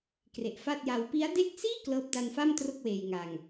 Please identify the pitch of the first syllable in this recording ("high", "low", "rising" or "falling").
low